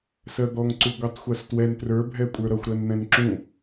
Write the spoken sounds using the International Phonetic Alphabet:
s ɜ d̪ ɔ ŋ ǀ u ɡʷ ɜ tˤ xʷ ɜ s t w ɛ n t r ə˞ bʱ ɛ kʷʼ ə˞ ɾ ʌ xʷ ɾ ɜ n n̪ ɛ̃ n ǁ ũ

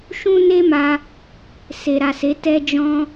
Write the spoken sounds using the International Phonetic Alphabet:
ʃ ũ˦ n e˦ m a˧ | s e˨ ɾ a˨ s e˨˦ t ɛ˧ d͡ʒ ɔ̃˧

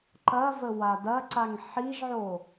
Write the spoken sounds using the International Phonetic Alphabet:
ǃ ɐ v ə w a d ɐ ǀ a ŋ ħ i ʒ ʕ o

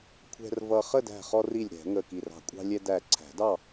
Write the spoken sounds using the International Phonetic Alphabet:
kʷʰ ɛ̤˧ r v ʌ˧ χ ə˥˨ d æ̤˧˩ χ ɔ˧ r i˧˩ lʲ ɾ ɛ̤˨˩˦ ŋ ə˧˩ k i˧˩ r ɑ̤˧˩ kʷʼ ɑ̤˧ lʲ ɛ˧ d æ˧˩ ǀʰ æ̤˨˩˦ d ɑ˥˨

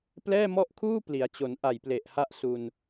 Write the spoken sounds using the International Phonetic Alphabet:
p l ɛː˥˩ m ɔ˥˩ ʔ kʰ uː˥˩ p l i˩˦ a̯ t͡ɕ o˩˦ n ʔ a˨˩ j p l e˨˩ ʔ h a˦˥ ʔ s u˧ n

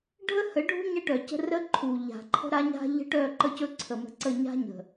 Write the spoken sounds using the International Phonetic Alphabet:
ɖʱ ə˦ h ə˨˦ ɖʱ ṳ˦ ɲ ə˦ ʈ œ˨ c ə̤˦ r ə˦ ǃʰ u˨ ʎ a̤˨ ǃʰ ə̤˦ ɾ a˦ ɲ a̤˦ ʎ ə̤˦ ʈ œ˦˨ ǃ ə˦ c ɵ˦ ǀʰ ə˨ m ə̤˨ ǀ ə˦˨ ɲ a̤˦ ɲ ə̤˨

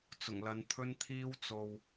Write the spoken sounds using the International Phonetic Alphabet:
t͡s ʊ˨˩ ŋ l ɐ˨˧ n t̪ʰ ɵ˥ n t̪ʰ iː˥ w t͡s o˧ w

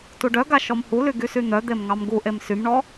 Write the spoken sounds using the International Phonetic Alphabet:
t u ɖ œ ɡ a ʃ ɔ m h u l y ɡ y s y n̪ œ d̪ e m ŋ ɑ m ɡ u ʔ e m s y m ɳ ɔ

